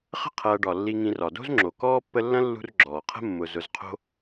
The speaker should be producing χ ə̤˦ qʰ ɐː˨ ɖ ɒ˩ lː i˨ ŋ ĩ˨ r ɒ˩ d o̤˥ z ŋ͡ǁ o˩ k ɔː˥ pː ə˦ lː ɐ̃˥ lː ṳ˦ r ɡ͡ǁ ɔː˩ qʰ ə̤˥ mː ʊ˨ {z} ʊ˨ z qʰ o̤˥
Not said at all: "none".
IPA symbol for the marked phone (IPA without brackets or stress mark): z